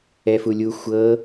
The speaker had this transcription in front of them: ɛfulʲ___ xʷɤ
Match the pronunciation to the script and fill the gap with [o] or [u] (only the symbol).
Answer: u